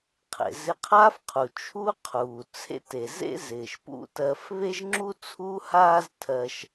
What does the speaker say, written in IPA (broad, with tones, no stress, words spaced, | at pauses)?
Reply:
qʰḛ˩zɪ˧qʰaː˥fqʰu˩ t͡ʃʰu˥qʰuː˩ t͡sʰḛ˥te˩ zḛ˥zɪː˩ʃ pṵ˥tɜ˧f βe˥ʒŋ͡ǁu˥t͡sʰuː˥ haː˥ztʰɜ˧ʃ